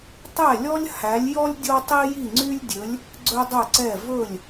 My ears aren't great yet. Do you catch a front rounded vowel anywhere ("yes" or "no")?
yes